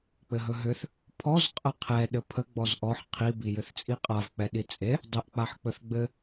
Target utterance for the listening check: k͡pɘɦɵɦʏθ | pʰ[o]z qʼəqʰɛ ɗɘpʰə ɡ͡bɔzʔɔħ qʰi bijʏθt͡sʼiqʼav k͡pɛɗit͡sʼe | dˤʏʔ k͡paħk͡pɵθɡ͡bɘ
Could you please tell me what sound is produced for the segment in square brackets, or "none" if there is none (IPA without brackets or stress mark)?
ɔ